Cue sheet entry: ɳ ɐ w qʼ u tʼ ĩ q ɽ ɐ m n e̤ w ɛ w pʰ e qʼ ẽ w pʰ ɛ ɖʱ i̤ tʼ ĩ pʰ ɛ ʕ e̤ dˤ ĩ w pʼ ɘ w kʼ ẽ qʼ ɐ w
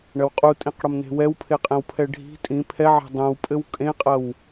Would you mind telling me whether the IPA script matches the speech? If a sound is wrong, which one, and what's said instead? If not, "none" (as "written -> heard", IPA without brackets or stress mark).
none